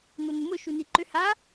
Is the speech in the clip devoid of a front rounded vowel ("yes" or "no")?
no